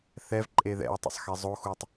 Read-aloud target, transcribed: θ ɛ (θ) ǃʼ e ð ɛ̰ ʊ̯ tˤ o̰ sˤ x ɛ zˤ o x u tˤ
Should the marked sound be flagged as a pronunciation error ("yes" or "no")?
yes